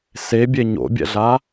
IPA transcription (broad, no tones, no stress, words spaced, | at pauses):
sebʲe ɲo̰bʲɛ̰ɮa